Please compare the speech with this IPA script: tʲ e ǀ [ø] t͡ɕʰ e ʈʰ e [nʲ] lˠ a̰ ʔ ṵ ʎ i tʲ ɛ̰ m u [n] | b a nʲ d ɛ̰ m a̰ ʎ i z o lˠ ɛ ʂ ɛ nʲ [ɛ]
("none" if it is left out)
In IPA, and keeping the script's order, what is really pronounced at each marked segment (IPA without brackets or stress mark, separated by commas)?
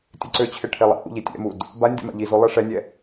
ø, none, d, ɛ